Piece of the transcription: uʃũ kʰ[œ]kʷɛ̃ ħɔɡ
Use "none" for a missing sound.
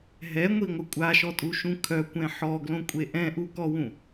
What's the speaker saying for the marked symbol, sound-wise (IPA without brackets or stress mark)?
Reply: œ